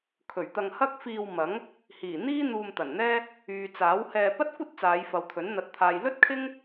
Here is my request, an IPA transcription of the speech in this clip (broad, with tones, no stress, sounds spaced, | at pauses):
kʰ ɵ˨˩ ɥ t̪ ɐ˧ ŋ h ɐ˥ k̚ f iː˧ w m ɐ˨˥ ŋ | h iː˨˩ n̪ iː˥ n̪ uː˧ m t̪ ɐ˨˩ n n̪ ɛː˥ | yː˨ t͡s aː˨˥ w h ɛː˧ p ɐ˥ t̚ kʷ ɐ˥ t̚ t͡s aː˨˧ j f ɐ˨ w t̪ʰ ɵ˨˥ n n̪ ɐ˨˥ t̚ t̪ʰ aː˨ j l ɵ˥ t̚ kʰ ɪ˥ ŋ